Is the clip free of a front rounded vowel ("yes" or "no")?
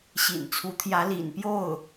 yes